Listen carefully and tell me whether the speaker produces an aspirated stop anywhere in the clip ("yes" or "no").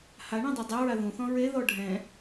no